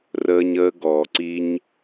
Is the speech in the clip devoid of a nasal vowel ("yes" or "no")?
yes